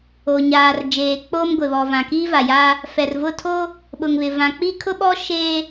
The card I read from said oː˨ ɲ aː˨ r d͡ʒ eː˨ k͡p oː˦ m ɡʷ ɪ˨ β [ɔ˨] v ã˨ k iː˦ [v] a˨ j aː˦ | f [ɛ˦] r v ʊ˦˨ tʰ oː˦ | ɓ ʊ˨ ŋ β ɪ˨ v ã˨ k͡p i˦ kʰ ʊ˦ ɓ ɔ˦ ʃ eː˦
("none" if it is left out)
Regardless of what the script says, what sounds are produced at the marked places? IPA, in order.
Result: ɔ˨, v, ɛ˨

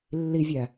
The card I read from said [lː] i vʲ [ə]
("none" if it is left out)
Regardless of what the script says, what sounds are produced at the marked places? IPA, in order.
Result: lː, æ

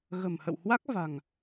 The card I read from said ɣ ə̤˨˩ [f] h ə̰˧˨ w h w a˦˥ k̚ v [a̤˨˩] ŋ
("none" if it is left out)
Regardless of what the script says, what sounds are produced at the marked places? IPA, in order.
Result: m, a̤˨˩

